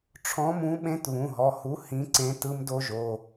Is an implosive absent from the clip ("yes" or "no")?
no